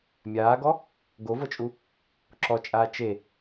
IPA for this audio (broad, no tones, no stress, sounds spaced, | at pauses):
mʲ aː ɡ ɔ | ɡ o v ɤ t͡ʃʼ u | ǁ ɔ t͡ʃʼ aː t͡ʃ e